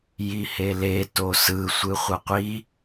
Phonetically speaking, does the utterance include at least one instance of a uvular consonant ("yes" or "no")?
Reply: yes